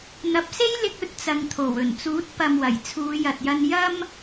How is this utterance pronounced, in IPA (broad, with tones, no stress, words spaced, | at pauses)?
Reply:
n̪ɐ˨p̚se˥jlɪ˧k̚ ɵ˥t̚t͡sɐ˨ŋt̪ʰo˨˩wɵ˨˩n t͡suː˨˥t̚pɐ˨mwɐ˨˩j t͡sʰuː˨˧jɐ˨t̚jɐ˧n jɐ˧m